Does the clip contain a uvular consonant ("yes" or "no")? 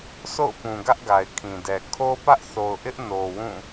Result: no